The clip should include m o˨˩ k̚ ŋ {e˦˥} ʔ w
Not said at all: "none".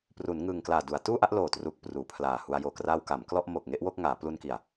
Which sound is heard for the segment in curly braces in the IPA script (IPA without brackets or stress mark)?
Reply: e˦˥